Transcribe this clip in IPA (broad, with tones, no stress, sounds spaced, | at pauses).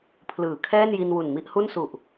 pʰ l ɯː˩˦ kʰ ɛː˥˩ n j i˧ n w u˨˩ n m i˥˩ ʔ h u˥˩ n s u˨˩ ʔ